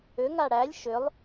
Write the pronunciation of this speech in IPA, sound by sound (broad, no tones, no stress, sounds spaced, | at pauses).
ʏ ŋ a ɽ æ lʲ ʃ ʏ lˠ